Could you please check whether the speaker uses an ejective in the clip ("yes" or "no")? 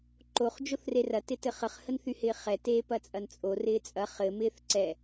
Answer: yes